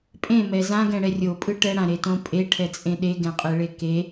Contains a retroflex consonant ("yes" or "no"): yes